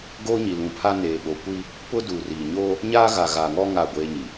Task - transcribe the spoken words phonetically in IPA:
ɡoː˦ɲi˨lũ˨pʰa˦ neː˨ɓo˨kʷi˦ | pʊ˦duː˨riː˨ ɲoː˦ | ɲaː˦ɣa˨ɣa˨ŋɔ˦ ŋa˦˨ɡʷeː˦ɲi˨

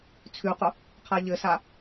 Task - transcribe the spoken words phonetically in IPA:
t͡sʰʉqʊ | qʰaʎɘsa

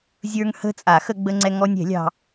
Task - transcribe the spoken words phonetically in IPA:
zʲə˞˧ŋhə̤˧ t͡sʼa˨˩˦xə˧ɡ͡bə˧ ŋ͡ǀɛ˧ŋɔ˧nʲɛ̤˨˩˦lʲɑ̤˧

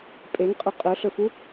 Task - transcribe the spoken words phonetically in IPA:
pʼeŋqʼɵ qʼɵɬɵfu

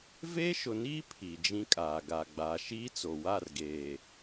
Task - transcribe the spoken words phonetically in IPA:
veː˦ʃʊ˨niː˦ pʰi˨d͡ʒĩ˦kʼaː˨ ɡa˨ɡ͡baː˨ʃiː˦t͡so˨ wa˦˨rɡeː˨

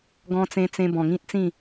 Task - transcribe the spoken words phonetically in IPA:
ɡɔ̃˧t͡sẽ˧t͡sẽ˧ bɔ̃˨˩ŋĩ˦t̚t͡sĩ˥˧

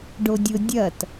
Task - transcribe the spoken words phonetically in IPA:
ɖodʲʊ dʲɐt

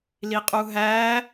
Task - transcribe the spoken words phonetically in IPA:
liqʼuɦæ

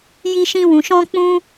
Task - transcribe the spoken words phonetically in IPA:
ji˦ʃĩ˦wũ˧ ʃɔ̃˦k͡pũ˦

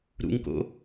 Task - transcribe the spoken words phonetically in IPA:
ɾṵŋko̰

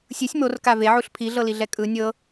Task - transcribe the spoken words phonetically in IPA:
sʲɯsʲ morka veʕuɬ pʰiɮɤliɮɛ kʼɯ nʲɤ

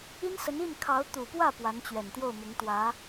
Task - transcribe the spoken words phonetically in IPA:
i˥nsə˧˥n i˥˩n kʰɑ˧˥ʊ̯t̪u˨˩pwä˥˩ pwa˧˥nt͡ɕɥɛ˨˩nt̪jo˥˩ʊ̯ mʊ˧˥ŋt̪wä˧˥

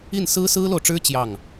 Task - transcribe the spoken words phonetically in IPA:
i˥˩n sɹ̩˥sɹ̩˥lo˨ʊ̯ʈ͡ʂɻ̩˥ t͡ɕjɑ˥˩ŋ

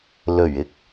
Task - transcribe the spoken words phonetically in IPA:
lɵ˨˩ɥɪ˨k̚

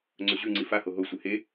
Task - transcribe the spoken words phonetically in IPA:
ŋ͡ǀɵʑʉŋ͡ǀi faho ɦosʷɨ he

